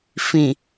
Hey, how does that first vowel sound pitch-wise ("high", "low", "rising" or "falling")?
low